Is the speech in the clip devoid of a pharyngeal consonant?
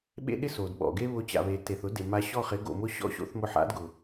no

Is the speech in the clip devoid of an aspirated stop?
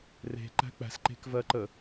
yes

